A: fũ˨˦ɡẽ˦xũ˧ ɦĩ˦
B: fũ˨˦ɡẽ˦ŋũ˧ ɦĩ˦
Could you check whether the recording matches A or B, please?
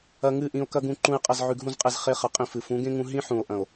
B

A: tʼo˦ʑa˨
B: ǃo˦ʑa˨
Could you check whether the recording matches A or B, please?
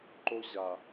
B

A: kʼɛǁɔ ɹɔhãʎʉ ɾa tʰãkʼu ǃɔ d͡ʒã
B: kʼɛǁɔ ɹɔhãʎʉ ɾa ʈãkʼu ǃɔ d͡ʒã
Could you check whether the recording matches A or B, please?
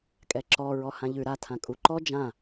A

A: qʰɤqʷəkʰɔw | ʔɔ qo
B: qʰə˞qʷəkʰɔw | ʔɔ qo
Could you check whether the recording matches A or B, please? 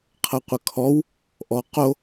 A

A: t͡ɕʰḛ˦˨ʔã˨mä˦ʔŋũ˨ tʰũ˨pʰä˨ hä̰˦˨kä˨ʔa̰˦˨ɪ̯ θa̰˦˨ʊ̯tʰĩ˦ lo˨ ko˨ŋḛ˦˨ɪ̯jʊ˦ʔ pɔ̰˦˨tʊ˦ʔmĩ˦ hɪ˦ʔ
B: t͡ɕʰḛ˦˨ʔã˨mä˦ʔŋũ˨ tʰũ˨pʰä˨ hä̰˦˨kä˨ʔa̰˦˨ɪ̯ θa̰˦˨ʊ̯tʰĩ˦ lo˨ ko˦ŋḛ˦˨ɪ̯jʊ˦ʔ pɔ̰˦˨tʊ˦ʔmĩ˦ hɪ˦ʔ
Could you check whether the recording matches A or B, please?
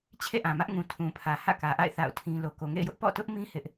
A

